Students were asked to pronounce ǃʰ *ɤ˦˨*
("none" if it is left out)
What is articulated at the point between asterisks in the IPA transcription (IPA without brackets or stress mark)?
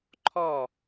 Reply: ɔ˦˨